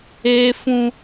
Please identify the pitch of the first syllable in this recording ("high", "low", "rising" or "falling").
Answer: high